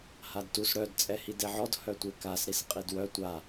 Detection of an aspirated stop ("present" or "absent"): absent